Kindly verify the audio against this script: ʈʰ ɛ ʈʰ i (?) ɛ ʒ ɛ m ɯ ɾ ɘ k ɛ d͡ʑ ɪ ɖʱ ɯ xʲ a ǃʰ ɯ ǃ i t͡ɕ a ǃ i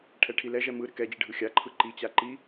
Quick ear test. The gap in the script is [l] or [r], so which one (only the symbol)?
l